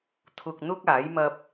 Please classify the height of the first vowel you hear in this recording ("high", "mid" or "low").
high